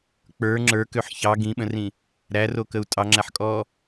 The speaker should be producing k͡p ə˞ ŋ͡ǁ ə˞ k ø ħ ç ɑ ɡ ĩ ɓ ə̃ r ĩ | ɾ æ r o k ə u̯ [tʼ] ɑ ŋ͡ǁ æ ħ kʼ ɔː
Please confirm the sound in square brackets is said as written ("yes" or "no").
yes